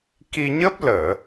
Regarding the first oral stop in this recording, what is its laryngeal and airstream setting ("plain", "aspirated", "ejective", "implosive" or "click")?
plain